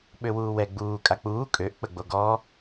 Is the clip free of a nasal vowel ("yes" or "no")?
yes